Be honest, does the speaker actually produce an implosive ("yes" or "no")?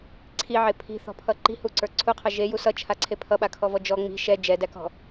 yes